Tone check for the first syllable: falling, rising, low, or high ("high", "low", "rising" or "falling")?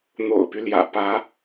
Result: low